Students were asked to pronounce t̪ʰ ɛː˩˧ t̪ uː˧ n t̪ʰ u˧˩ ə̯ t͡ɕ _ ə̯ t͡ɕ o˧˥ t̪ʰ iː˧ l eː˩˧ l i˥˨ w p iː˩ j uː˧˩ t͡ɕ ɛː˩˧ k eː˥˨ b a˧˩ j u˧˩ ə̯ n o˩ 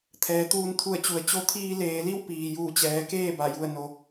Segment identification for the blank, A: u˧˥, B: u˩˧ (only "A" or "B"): B